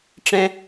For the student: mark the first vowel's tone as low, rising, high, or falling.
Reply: high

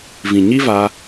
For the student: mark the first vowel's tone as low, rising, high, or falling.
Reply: low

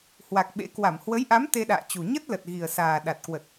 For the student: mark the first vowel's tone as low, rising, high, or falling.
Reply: low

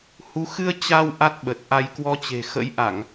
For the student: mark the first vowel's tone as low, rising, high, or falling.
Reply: rising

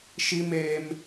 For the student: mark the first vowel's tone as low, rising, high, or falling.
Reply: high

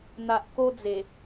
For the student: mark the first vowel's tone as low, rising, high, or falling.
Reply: low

